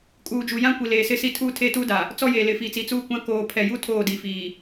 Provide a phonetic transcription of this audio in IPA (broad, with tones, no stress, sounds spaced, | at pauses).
kʼ uː˨ d͡ʒ u˨ j ã˦ kʷ i˨ l eː˨ s ɪ˦ s i˦ tʰ uː˦ tʰ eː˦ t uː˦ d a˨ | t͡s ɔ˦ j eː˨ l ɪ˨ f iː˨ t͡s i˨˦ t͡s uː˦ kʷ ã˦ k oː˨ pʰ ɛ˨ j u˦ tʰ oː˦˨ d i˨ f iː˨